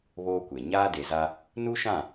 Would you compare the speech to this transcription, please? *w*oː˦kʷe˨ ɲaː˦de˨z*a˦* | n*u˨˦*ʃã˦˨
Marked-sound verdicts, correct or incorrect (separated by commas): incorrect, correct, incorrect